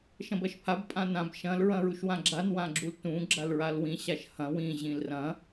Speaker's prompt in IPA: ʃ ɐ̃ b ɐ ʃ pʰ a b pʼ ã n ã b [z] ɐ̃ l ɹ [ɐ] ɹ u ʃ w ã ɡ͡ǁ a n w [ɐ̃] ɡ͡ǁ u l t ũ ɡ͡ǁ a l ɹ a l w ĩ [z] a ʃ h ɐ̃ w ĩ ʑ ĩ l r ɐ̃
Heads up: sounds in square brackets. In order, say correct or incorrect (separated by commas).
incorrect, incorrect, incorrect, incorrect